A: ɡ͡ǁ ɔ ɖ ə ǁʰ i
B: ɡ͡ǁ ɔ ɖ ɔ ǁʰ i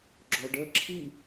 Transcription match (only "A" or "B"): A